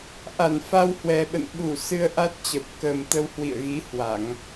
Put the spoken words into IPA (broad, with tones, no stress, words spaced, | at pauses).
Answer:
ʔa˧˩n fa˧whwɛ˨˩ɓə̰˧˨n ɓu˧˩ sɨ˧ə̯ʔa˦˥t̚t͡ɕə˨˩p̚ kə˨˩mt̪ə˧w hwḭ˧˨ə̯ɣi˨˦hwa˧˩˨ŋ